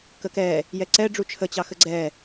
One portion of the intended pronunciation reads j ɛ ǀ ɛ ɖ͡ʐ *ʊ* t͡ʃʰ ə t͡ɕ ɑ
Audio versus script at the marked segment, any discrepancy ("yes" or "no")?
yes